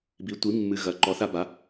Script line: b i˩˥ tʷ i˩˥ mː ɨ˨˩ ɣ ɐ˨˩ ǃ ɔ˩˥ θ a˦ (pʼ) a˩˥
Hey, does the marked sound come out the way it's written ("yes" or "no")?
no